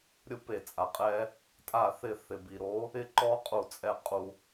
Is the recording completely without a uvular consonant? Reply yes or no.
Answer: no